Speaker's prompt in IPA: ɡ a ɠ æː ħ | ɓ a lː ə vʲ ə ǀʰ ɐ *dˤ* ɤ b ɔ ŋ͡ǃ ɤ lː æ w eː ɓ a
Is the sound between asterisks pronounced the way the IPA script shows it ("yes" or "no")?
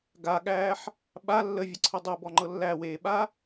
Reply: yes